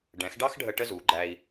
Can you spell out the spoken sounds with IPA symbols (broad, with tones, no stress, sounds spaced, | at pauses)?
ɖ ɛ̃˩˥ x ɖ ɑ˥ x ɖʱ ə˧ ʈ ə˥ z u˩˥ ɡ͡ǃ æ˧ i̯